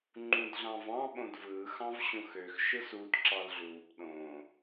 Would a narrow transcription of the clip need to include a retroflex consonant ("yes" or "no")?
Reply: no